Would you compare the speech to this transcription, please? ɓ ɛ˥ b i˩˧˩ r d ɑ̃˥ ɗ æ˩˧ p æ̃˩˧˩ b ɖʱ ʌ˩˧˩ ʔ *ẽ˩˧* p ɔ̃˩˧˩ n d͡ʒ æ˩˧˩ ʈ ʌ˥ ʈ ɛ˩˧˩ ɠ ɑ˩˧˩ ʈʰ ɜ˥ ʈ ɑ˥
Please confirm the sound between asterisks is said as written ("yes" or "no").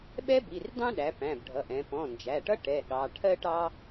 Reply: no